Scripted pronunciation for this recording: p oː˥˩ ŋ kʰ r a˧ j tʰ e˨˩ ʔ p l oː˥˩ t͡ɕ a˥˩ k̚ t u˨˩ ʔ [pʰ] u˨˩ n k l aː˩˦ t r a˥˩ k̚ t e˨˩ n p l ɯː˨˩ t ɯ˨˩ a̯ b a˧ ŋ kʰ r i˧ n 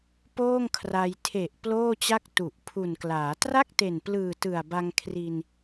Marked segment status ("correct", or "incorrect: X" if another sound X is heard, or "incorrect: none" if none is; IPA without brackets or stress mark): correct